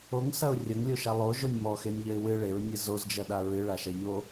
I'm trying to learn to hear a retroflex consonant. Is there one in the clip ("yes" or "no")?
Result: yes